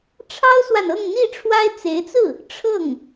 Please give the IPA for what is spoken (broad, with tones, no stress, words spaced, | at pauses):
ʈ͡ʂʰɑ˥ʊ̯swa˨n ɤ˥˧ŋn̪i˥˩ʈ͡ʂʰwa˥ɪ̯ t͡se˧˥ɪ̯t͡sɹ̩˥˩ | ʈ͡ʂʰɤ˥˩ŋ